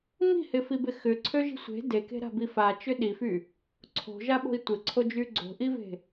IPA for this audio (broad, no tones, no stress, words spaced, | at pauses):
mi̤hɪfibɪ xʏǀʰøʒi̤ sʷe̤ deke̤ɾa̤bi fat͡ʃʏ ɗify | ǀʰo̤ʒaɓo̤i̯ tʷɪǀʰod͡ʒy ɡ͡ǀo̤ʔive̤